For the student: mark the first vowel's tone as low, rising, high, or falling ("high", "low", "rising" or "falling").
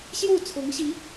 falling